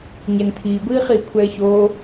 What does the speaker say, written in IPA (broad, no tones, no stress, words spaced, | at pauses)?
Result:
ɲɛnt̪ʰiːɡʷiː χiːkʷʰɛːçoː